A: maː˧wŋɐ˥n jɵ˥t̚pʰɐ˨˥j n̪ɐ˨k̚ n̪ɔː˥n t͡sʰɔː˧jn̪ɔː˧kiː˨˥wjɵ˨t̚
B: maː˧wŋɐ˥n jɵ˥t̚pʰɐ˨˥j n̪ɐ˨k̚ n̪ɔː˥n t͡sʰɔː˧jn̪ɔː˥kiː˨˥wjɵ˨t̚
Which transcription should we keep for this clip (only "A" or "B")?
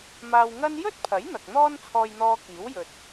A